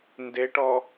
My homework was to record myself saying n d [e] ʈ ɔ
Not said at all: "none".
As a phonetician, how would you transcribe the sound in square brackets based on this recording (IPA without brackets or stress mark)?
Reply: e